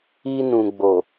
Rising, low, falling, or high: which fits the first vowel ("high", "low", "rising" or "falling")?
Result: high